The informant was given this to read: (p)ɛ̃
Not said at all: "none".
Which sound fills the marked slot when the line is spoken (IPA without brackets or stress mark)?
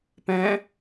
p